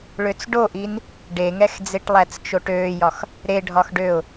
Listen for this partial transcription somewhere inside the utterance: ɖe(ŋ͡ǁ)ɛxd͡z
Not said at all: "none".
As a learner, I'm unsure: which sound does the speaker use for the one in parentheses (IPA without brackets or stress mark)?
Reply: ŋ